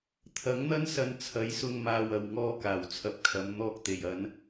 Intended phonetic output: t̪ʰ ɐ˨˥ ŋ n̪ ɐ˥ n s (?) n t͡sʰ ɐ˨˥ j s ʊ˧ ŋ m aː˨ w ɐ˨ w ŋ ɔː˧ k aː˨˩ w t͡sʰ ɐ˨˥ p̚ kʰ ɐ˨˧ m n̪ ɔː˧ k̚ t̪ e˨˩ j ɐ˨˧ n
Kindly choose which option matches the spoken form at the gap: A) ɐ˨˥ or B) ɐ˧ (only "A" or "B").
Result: B